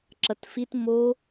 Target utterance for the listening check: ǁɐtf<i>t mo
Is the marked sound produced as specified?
yes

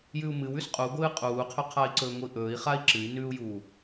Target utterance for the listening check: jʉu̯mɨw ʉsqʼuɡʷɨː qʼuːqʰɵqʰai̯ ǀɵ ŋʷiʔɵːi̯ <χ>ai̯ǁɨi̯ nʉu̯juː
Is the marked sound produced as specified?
yes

